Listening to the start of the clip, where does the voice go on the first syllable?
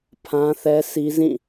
high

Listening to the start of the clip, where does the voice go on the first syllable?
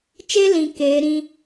high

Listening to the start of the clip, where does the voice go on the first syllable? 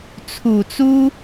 low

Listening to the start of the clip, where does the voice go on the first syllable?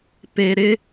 low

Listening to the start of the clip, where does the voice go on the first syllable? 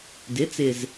rising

